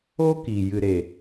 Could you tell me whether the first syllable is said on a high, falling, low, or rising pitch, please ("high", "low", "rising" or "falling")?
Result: high